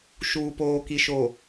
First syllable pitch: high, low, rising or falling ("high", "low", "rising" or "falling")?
low